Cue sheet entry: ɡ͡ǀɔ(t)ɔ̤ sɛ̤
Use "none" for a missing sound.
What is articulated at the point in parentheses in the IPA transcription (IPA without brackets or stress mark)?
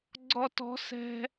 t